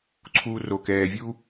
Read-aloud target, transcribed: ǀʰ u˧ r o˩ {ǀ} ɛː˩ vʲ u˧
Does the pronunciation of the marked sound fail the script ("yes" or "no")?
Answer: yes